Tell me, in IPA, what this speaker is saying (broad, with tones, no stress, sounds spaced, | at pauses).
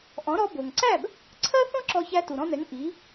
ʔ ɔ̃˩˥ ɾ ɔ˧ b o˩ ŋ ǀ æ˥˩ b | ǀʰ ɜ˥ θ ɔ̃˥ ǁ ɔ˧ ç æ˧ t u˩ ɾ ɔ̃˧ n ɛ˩˥ ŋ ʔ i˩˥